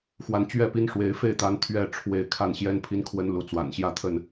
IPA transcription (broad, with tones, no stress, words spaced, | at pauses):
xwa˨˦nt͡ɕɥɛ˥˨pi˦nʂwe˨˦ɪ̯ fe˥˨ɪ̯t̪a˨˦n t̪ʰɥɛ˥˨ ʈ͡ʂʰwe˨˦ɪ̯ kʰa˥˨nɕjɛ˦n pʰi˨˦nkʰwə˨˦n lu˨˦t͡swa̰˨˩nɕjä˦t̪ʰə˥˨n